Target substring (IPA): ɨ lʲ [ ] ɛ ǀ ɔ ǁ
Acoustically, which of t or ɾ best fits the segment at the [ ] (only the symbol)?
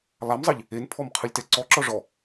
t